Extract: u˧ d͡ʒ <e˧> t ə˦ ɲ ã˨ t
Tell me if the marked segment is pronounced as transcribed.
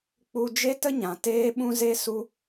no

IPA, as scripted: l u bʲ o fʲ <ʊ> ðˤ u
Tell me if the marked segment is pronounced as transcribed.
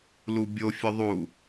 yes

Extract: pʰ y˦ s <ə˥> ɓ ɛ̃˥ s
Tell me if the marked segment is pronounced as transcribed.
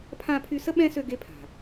yes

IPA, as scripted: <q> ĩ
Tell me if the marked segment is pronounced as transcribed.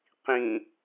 yes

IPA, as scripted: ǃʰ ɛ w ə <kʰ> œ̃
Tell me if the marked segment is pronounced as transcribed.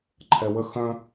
no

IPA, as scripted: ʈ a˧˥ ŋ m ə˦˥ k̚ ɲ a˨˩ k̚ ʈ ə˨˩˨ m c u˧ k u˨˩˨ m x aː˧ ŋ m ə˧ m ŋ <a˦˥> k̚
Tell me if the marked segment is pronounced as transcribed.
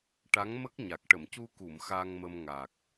no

